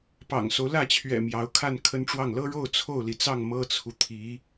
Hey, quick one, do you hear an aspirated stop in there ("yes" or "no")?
yes